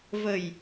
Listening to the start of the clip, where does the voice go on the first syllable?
low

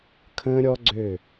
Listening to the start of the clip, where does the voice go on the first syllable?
high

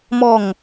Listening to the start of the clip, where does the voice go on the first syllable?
falling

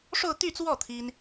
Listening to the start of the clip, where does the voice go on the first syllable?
falling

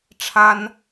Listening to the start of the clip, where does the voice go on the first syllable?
high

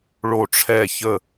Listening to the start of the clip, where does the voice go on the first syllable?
falling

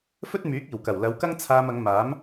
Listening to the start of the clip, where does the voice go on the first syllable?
high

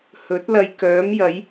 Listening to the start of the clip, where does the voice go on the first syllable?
rising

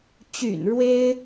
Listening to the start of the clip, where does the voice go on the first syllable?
low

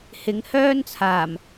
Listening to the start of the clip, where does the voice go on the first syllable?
rising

